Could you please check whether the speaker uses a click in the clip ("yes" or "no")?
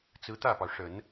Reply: no